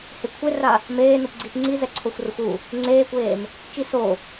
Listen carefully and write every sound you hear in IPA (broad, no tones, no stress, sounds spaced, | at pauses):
h ɪ kʷʰ e r a | m eː n u p ɡ͡ǀ i p ŋ͡ǀ i z ɛ ǀʰ o xʷ r ʊ xʷ u | ŋ͡ǀ eː kʷ eː m | t͡ʃ i s o